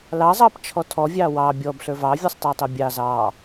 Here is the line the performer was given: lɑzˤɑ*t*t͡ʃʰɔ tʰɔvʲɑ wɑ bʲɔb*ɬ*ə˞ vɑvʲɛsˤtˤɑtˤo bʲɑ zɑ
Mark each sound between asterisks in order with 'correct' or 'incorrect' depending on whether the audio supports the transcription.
incorrect: p, correct

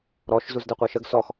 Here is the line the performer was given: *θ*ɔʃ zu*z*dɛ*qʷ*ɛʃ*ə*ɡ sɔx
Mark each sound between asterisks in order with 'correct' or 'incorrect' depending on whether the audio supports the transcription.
incorrect: ɾ, correct, correct, correct

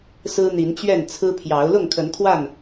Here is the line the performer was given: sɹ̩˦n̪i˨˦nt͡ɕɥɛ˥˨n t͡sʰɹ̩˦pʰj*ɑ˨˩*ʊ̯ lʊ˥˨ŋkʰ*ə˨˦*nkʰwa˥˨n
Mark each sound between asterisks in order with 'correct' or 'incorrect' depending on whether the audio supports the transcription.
incorrect: ɑ˨˦, correct

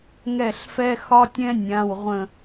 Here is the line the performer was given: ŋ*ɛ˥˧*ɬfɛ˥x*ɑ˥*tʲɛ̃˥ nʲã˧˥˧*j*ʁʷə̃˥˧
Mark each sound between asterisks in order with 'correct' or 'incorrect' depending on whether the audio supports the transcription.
correct, incorrect: ɒ˥, incorrect: w

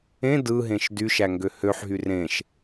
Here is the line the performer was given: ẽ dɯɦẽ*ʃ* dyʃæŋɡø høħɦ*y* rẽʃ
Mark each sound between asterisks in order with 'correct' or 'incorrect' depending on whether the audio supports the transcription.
correct, correct

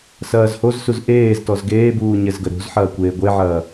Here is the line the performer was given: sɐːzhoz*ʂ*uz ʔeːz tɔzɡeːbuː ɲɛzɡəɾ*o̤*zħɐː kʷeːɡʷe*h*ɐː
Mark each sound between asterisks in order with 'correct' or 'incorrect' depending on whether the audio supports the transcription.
incorrect: s, correct, incorrect: ʕ

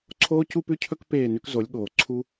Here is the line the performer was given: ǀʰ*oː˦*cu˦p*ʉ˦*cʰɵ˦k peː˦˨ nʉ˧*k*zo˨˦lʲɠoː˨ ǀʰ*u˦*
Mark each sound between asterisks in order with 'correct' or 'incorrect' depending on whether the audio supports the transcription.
correct, correct, correct, correct

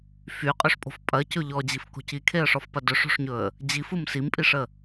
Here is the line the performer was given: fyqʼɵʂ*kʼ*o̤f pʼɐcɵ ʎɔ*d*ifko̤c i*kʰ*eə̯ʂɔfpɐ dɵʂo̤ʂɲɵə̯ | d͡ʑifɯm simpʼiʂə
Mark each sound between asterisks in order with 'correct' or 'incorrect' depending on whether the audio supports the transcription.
incorrect: pʼ, incorrect: d͡ʑ, correct

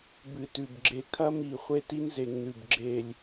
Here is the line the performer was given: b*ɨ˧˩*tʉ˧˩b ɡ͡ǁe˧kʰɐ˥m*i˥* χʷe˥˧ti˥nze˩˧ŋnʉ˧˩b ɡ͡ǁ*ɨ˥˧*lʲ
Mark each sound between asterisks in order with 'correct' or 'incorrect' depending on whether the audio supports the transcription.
correct, incorrect: i˧˩, incorrect: e˥˧

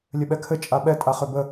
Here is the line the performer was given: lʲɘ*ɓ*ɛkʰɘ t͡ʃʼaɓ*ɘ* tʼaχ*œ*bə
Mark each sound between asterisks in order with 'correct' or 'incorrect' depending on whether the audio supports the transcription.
correct, incorrect: ɛ, incorrect: ø

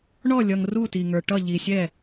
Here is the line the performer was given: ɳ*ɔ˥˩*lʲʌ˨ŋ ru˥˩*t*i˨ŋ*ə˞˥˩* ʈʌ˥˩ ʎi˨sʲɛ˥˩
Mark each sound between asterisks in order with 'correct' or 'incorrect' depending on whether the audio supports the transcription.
correct, correct, incorrect: ə˞˨

